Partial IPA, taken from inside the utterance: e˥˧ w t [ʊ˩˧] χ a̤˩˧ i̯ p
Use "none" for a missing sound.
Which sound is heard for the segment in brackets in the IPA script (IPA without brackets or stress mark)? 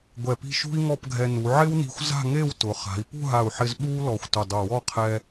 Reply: ʊ˩˧